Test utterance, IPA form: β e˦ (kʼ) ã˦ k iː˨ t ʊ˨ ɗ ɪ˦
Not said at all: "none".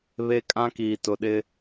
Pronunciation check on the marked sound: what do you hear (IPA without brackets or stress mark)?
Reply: kʼ